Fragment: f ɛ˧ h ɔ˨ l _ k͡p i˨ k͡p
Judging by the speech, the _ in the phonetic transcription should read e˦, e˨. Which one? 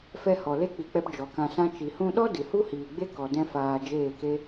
e˦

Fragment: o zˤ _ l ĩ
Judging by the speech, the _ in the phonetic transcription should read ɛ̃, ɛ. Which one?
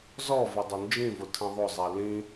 ɛ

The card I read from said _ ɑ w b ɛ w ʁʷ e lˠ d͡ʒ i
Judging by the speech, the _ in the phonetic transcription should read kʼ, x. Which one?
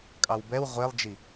kʼ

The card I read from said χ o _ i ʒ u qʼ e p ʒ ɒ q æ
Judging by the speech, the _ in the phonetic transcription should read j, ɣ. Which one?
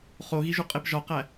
ɣ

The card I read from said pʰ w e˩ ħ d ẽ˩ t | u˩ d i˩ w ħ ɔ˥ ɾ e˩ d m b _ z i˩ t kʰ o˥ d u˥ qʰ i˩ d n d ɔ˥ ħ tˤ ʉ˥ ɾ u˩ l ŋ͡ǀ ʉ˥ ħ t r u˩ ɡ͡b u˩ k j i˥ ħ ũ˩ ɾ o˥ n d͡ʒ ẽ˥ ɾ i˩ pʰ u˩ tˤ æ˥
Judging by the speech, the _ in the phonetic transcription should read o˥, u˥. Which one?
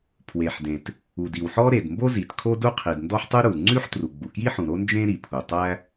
o˥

